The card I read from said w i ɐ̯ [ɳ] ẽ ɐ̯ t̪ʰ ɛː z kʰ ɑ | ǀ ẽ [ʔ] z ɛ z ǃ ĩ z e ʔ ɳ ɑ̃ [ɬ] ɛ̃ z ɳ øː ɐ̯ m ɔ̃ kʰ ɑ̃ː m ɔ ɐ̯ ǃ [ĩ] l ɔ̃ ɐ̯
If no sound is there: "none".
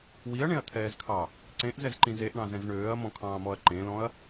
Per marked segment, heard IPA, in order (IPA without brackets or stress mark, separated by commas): ɳ, ʔ, z, ẽ